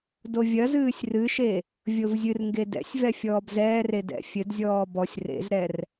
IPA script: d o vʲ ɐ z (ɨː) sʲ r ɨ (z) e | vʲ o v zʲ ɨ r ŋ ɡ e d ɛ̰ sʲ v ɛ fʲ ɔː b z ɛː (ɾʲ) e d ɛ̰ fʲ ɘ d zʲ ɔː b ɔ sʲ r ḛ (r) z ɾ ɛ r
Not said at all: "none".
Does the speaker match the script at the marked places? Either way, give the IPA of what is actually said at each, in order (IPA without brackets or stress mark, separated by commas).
ɨː, ʃ, r, none